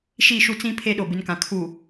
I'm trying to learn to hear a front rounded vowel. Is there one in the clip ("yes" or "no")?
no